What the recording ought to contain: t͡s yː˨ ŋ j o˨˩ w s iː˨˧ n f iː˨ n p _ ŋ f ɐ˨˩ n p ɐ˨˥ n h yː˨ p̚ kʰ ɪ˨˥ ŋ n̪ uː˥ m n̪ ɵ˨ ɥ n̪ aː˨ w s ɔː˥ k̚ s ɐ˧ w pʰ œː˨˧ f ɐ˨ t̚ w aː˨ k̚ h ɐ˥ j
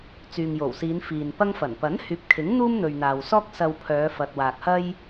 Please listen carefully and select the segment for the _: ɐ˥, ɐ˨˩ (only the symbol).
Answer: ɐ˥